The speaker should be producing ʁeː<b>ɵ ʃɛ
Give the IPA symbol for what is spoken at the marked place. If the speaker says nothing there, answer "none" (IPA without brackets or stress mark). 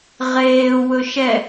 w